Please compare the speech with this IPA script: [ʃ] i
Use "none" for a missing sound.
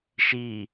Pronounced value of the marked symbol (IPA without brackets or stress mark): ʃ